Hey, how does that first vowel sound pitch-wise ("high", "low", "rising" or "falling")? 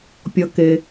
low